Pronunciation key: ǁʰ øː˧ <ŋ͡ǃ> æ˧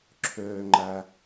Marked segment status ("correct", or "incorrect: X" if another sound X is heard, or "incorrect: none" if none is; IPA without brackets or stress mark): correct